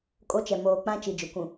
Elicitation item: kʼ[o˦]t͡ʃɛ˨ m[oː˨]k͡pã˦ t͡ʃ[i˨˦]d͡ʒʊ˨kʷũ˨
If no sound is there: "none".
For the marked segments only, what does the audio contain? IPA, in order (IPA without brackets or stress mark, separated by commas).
o˦, oː˨, i˨